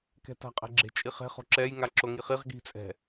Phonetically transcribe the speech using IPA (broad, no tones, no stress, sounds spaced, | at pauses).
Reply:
k ɛ̤ t a̤ qʼ ɛ̤ ɡ͡ǁ e̤ t͡ʃʼ i χ e̤ χ o̤ ǁ ɛ j ŋ a ǁ o ŋ i χ i ʁ ɡ i̤ t͡sʼ ɛ̤